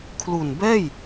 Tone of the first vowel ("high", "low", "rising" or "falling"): low